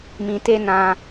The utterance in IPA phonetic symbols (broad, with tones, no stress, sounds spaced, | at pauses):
m ĩ˨ t e˧ n ã˧